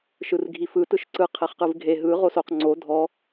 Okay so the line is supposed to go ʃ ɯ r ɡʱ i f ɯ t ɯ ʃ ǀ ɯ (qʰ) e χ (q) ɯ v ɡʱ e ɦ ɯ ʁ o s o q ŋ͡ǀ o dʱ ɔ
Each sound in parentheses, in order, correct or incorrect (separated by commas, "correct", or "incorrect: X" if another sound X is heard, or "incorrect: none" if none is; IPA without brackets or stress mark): correct, correct